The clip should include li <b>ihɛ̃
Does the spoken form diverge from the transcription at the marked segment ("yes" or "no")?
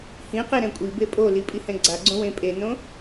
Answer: yes